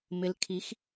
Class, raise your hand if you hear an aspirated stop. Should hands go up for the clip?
yes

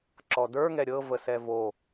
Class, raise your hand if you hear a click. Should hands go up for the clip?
yes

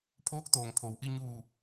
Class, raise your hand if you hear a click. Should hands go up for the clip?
no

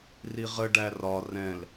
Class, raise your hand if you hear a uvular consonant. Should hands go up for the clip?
yes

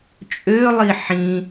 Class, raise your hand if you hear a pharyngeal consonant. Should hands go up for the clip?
yes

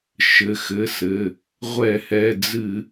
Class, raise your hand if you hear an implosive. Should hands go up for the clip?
no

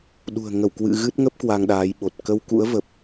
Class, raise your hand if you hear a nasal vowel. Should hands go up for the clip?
no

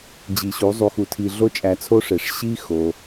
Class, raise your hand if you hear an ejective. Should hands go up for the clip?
yes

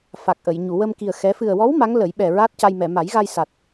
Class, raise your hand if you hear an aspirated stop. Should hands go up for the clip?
no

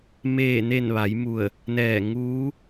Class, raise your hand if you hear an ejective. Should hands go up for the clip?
no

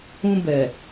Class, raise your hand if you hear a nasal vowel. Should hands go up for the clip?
yes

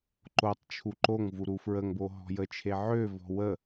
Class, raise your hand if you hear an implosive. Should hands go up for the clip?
no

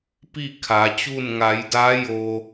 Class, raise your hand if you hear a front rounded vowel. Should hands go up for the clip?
no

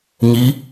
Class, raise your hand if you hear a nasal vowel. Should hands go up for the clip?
no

